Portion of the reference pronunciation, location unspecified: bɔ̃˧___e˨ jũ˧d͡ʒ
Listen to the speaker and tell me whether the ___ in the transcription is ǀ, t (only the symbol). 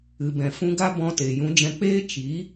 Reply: t